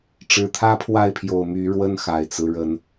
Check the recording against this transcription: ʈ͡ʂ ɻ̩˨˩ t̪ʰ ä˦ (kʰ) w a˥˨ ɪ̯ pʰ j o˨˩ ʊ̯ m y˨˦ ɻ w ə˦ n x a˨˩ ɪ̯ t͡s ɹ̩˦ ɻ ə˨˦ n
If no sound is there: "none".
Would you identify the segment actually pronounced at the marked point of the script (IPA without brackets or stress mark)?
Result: pʰ